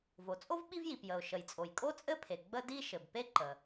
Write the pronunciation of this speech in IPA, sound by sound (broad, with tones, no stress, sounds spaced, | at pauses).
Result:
v o˩ t͡sʼ o˥ v ɓ i˥ v j i˩ p j ə˩ ʊ̯ ʃ ə˩ j t͡sʼ o˩ j kʼ o˥ t͡sʼ ɘ˥ pʰ e˩ ɡ͡b ə˥ d i˥ ʃ ɘ˩ b p e˥ ǃ ə˩